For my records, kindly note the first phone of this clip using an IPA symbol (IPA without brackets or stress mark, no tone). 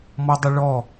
m